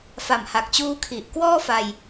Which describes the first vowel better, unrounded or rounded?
unrounded